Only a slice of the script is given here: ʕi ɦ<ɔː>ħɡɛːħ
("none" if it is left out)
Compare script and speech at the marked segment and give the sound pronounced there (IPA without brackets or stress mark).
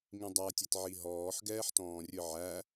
ɔː